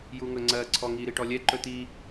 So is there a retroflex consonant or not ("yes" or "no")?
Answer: yes